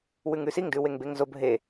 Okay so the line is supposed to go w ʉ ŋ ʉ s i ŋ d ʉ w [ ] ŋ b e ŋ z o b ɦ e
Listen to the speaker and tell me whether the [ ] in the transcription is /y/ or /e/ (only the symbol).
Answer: e